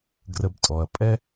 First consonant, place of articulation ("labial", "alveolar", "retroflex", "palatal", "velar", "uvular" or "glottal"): velar